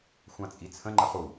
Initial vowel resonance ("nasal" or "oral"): nasal